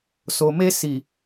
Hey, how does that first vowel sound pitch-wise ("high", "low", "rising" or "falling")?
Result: low